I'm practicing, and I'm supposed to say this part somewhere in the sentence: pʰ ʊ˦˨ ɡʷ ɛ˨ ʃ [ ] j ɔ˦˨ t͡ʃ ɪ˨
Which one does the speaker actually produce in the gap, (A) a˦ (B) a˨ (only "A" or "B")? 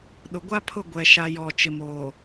A